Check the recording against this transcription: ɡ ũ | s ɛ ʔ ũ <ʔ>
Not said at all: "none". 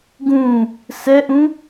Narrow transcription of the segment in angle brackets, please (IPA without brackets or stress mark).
none